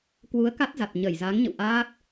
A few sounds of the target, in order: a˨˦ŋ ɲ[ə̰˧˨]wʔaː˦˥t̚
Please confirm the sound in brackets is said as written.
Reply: yes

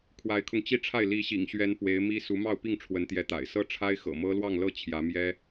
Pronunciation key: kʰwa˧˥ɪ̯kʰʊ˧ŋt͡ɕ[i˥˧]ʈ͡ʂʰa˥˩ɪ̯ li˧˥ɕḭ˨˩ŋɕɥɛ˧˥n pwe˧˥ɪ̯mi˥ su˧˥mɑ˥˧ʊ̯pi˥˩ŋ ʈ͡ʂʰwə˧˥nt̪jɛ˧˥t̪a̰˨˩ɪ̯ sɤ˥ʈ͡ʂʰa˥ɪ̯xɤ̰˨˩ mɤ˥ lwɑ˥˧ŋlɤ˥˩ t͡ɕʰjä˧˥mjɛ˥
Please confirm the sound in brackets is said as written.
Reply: yes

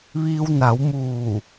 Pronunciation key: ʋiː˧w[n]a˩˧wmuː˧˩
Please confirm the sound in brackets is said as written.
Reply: yes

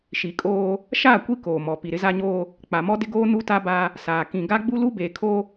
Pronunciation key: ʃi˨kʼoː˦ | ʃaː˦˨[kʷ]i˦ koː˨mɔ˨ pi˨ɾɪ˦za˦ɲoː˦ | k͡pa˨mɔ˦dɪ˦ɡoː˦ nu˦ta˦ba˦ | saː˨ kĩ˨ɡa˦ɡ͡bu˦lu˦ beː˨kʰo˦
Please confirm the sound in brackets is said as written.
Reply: yes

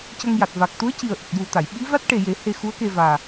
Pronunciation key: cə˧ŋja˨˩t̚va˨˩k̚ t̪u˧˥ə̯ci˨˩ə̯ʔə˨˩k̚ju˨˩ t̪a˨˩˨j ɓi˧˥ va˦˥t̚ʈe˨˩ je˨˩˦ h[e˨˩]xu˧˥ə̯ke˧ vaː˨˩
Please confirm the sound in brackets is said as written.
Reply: no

